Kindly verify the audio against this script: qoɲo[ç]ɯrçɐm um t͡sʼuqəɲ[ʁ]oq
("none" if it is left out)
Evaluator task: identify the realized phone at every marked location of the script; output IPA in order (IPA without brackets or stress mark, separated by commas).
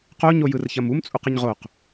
j, ʁ